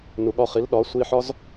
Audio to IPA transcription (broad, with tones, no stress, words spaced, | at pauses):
nu˨ɠɒ˧χi˨˦l ɗɒ˨˦sʷi˧ħɒ˦z